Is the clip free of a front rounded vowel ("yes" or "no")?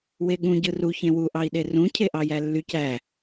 no